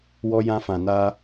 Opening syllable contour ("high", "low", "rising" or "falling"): high